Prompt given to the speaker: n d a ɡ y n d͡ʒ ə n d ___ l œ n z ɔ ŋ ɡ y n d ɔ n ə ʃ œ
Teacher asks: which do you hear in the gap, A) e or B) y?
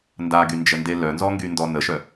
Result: A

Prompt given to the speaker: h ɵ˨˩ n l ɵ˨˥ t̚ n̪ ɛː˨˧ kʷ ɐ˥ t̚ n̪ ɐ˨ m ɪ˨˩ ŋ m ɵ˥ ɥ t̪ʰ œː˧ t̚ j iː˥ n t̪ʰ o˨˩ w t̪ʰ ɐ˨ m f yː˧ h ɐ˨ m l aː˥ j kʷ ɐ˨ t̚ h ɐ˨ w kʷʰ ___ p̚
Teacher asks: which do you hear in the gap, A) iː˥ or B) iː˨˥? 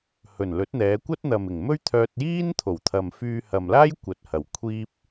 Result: A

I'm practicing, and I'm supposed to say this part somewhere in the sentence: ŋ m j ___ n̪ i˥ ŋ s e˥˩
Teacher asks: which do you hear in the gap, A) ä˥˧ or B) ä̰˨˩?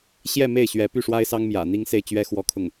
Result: B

